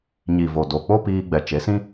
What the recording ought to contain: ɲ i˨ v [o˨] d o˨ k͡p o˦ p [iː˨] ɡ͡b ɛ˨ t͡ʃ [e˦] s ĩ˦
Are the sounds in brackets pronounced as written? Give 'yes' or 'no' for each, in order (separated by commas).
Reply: yes, no, no